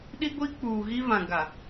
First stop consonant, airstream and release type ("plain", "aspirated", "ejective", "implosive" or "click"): implosive